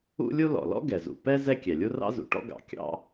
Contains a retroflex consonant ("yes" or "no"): yes